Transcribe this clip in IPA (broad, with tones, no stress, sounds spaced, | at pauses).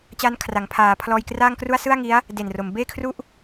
t͡ɕ aː˦˥ n kʰ r a˩˦ ŋ pʰ aː˩˦ pʰ l ɔː˧ j k r aː˥˩ ŋ k r u˥˩ a̯ s ɯ˥˩ a̯ ŋ i˦˥ a̯ | d e˨˩ n r o˩˦ m b eː˥˩ kʰ r u˥˩ ʔ